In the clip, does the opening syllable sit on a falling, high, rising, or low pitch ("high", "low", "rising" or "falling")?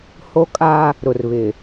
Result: high